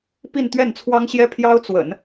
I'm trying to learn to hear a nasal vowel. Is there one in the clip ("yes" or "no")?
no